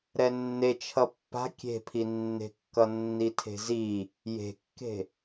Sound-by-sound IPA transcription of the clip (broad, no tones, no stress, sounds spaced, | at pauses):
ɾ ɛ nː e t͡ʃʰ ʌ pː a̤ kʲ e̤ pʰ i nː e̤ kː ʌ nː i tʰ e̤ z i | j e̤ kː e̤